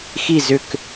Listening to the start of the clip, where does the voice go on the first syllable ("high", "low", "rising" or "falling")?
falling